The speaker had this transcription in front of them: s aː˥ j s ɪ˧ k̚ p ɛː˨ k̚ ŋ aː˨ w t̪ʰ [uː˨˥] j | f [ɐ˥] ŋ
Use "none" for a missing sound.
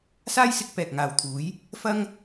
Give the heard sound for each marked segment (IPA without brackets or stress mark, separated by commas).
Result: uː˨˥, ɐ˥